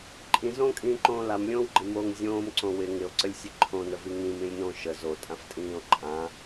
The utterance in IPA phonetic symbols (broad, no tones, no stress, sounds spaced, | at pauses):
ǃʼ ĩ z õː kʼ ĩː ǃ õː l a m lʲ õː w ɡ͡ǃ ɪ m o ŋ zʲ õː m ǀ õ w ɪ ŋ ɪ o̯ ǀ ə lʲ sʲ ə ǃʰ õ n ə v i ŋ ĩ m ĩ lʲ n õ ʃ ə z o tʼ ã f tʼ ĩː o̯ ǃʼ ã